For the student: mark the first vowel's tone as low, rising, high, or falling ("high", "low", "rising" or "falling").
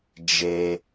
high